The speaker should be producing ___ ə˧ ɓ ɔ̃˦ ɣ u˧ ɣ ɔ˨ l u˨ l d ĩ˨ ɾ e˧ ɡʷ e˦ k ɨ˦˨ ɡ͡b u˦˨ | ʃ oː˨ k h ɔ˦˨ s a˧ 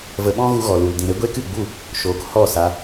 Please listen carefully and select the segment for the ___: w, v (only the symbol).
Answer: v